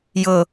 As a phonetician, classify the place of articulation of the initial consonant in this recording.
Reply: palatal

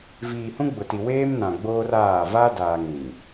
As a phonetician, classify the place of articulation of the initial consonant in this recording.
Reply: labial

